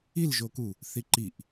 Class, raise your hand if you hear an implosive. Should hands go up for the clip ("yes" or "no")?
no